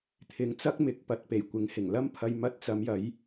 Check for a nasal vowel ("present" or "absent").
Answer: absent